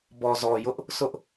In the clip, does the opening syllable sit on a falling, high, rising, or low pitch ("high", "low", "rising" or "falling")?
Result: low